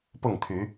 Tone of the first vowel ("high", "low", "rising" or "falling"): falling